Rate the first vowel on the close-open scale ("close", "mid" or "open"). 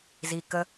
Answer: close